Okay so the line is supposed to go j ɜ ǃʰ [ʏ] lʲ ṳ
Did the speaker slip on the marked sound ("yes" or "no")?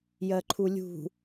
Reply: yes